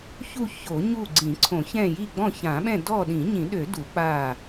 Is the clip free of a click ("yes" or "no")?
no